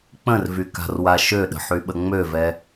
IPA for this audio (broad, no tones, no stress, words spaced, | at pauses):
k͡pə̃rvyka̤rwa ʃøɗə̤ħyɓə ŋ͡møvɛ